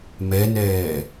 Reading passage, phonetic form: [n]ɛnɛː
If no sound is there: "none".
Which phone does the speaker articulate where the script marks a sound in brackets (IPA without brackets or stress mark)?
m